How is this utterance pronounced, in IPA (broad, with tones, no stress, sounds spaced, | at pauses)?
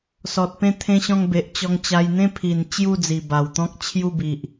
s ɔ˨ t̚ p ẽ˥˧ t̪ʰ ẽ˦ ɕ ɔ̃˥˧ ŋ b e˨ ʔ t͡ɕ ɔ˧ ŋ t͡ɕ a˧ j n̪ ẽ˦ pʰ i˨˩ n t͡ɕ j u˥˧ d͡z i˨˩ b a˨˩ w t̪ ɔ̃˦ k̚ t͡ɕʰ j u˥˧ b i˨ ʔ